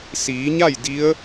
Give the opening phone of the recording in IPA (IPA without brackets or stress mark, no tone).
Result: s